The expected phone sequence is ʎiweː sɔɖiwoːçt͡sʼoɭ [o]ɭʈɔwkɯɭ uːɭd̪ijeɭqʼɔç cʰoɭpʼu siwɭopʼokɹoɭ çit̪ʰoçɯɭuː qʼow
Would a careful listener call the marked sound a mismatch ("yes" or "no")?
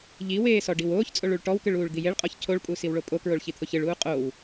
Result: yes